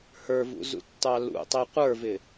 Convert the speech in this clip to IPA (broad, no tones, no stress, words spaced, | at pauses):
hə˞vṵzṵtːɑ lṵtˤi qʷə˞vɪ